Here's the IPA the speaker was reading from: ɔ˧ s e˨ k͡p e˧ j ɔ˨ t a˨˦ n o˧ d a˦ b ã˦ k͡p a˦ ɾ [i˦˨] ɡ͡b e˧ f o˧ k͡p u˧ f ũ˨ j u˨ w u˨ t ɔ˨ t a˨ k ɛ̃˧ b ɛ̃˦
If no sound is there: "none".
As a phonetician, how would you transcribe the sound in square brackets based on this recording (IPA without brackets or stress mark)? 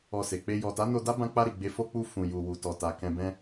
i˦˨